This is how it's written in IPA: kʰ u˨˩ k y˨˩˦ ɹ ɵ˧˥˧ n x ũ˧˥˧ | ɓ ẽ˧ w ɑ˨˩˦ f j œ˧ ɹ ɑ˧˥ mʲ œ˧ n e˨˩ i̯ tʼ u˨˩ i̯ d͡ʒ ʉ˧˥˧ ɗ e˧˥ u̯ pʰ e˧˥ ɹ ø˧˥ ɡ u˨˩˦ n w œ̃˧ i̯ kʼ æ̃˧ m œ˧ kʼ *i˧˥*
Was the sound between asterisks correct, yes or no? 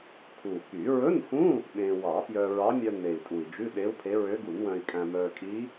yes